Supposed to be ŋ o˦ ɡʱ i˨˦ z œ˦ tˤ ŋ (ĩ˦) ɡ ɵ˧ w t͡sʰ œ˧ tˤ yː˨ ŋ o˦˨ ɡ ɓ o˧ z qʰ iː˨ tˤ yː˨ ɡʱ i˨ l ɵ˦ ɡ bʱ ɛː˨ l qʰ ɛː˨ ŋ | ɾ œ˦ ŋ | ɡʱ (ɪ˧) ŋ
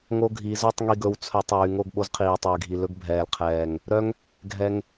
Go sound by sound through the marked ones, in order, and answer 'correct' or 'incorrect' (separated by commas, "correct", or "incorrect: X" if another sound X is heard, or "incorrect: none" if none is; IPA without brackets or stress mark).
incorrect: i˦, incorrect: ɛ˧